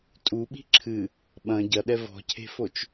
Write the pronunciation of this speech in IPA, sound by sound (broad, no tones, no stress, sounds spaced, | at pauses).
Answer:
tʼ u ɓ i̤ ǁʰ ɨ | ɓ ɐ̃ ɟ ɐ ɗ ɛ v ɔ̤ cʰ e̤ f o t͡ʃ